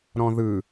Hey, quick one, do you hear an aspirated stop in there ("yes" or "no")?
no